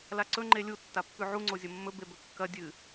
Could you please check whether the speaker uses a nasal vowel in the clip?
no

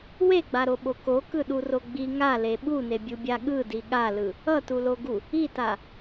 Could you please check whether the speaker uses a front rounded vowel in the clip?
no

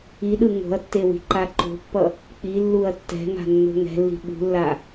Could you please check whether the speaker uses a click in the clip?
yes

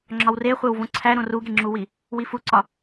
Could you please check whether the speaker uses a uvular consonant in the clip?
yes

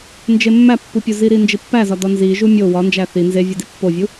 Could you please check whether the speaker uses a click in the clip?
no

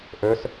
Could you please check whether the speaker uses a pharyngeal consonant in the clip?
no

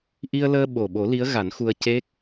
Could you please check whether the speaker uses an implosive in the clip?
yes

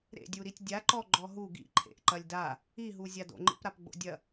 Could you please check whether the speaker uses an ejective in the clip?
no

